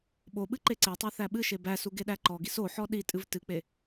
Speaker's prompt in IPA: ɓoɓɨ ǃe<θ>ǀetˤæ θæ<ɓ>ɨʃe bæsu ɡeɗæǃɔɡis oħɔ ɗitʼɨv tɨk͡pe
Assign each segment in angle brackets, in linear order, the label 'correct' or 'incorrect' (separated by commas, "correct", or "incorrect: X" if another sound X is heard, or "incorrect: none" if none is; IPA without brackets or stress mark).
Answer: incorrect: none, correct